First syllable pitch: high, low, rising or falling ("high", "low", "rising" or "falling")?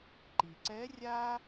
low